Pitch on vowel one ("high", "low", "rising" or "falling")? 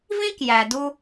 high